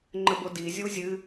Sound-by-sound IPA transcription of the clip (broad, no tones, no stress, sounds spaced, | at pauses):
ŋ͡ǃ ə b o d i zʲ u zʲ ɨ